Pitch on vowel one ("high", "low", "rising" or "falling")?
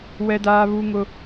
high